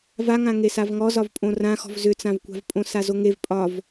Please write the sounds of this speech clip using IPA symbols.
vaŋã ŋesavŋɔ zɒvpʼõrãxɔ̤v zʏt͡sãvkʷa̤vpʼõ sazoŋev pʼɒv

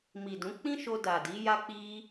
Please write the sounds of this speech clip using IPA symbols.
mi˨dũ˨˦ k͡pĩ˦ ʃo˧ da˨di˨˦ ja˦k͡pi˦

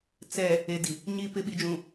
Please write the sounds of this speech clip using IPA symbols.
t͡sɛ˨ | e˨di˨ | ɲi˨pɪ˨ ɓi˨d͡ʒũ˨

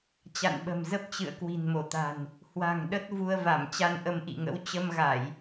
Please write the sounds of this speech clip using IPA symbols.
t͡ɕa̰˧˨nɓə̤˨˩mzə˦˥p̚t͡ɕɨ̰˧˨ə̯ kwi̤˨˩nmo˧˩t̪a̤˨˩n | hwa̤˨˩ŋɗə˦˥t̚ vu˧ə̯va˧˩m t͡ɕa˧nʔə˧mʔḭ˧˨ŋə̰˧˥w t͡ɕə˧mɣa˧˩˨j

